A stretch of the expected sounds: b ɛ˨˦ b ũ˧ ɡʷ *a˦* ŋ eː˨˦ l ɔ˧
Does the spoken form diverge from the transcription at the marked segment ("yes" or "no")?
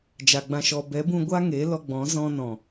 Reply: no